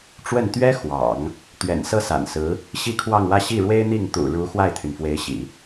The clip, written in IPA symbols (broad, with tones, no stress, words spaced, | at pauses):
ʈ͡ʂwə˥˩n t̪ɥɛ˥ xwɑ̰˨˩˦ŋ | t̪ɥɛ̰˨˩nsɤ˥˩sa̰˨˩nsɹ̩˧˥ | ɕi˥˧kʰwɑ˥˧ŋwä˥˧ ɕi˥˩ɻwe˥ɪ̯n̪i˥˩ŋ t̪ṵ˨˩ɻu˧˥ xwa˥˩ɪ̯t̪ʰy˩nfwe˧˥ɪ̯ɕḭ˨˩˦